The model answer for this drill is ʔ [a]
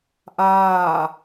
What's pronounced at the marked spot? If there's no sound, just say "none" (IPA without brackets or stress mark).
aː